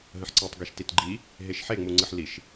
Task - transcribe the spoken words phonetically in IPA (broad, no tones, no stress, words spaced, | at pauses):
ɦə̃ħǀetˤ ɡeʃtitɡ͡ǃi | ɦeʃħeŋ͡mu ŋ͡ǀɨħliʃ